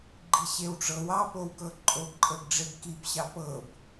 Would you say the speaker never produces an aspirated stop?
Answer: yes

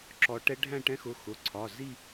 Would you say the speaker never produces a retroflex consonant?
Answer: no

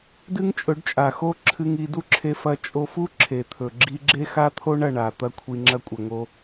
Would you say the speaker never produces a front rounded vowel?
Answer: yes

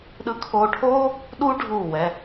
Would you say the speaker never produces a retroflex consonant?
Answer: no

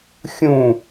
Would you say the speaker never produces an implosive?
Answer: yes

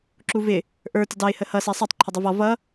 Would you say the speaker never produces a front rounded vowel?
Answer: yes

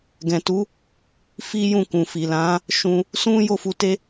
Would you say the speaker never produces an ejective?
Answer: yes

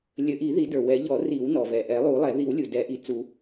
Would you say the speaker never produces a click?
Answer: yes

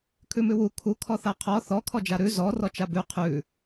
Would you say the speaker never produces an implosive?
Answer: yes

